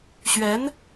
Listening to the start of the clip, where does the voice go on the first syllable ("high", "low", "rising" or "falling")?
rising